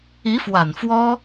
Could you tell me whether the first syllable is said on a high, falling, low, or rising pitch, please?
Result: rising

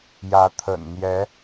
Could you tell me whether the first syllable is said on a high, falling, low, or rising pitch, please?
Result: rising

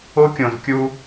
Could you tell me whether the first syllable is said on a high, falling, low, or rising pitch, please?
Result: high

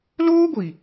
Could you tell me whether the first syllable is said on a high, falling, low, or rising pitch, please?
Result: high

